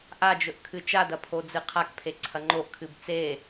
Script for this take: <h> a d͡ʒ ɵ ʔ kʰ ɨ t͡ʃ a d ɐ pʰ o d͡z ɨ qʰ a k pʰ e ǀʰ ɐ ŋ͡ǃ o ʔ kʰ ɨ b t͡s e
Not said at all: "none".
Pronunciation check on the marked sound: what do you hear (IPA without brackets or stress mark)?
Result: ʔ